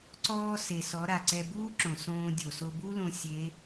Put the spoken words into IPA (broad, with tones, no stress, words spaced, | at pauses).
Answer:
ǀɔː˧ se˩sɔ˩˧ ɾa˩ǀɛ˧ buː˥ǁõ˩ sõː˧ dʲo˩so˧bu˥lõ˧ sʲe˧˥